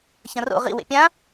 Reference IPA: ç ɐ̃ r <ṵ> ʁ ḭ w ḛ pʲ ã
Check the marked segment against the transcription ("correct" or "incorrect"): incorrect